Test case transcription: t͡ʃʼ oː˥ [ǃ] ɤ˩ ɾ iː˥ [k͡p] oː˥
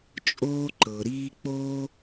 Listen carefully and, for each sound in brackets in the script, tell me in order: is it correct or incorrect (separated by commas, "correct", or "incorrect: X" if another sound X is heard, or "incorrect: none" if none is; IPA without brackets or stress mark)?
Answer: correct, correct